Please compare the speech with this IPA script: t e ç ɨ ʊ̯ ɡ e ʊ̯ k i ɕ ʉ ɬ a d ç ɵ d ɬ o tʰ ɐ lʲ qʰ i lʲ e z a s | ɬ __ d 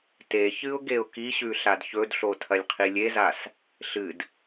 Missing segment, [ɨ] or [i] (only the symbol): ɨ